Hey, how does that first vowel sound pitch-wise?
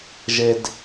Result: low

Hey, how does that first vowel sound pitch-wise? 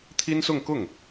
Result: high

